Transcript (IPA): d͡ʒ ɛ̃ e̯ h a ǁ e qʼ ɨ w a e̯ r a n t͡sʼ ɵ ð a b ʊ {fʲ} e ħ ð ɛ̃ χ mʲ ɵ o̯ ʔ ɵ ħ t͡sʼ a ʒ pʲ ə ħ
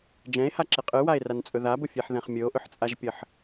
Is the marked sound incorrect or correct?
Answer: correct